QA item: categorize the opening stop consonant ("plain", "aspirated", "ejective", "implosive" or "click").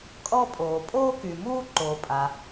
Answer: ejective